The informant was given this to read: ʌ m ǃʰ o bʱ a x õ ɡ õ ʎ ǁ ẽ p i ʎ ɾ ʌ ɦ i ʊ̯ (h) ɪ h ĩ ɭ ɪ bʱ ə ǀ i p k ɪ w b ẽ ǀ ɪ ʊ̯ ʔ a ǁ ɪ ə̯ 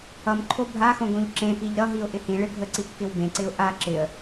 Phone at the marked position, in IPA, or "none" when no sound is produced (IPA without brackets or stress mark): ʔ